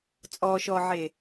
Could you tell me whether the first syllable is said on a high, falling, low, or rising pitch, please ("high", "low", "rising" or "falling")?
low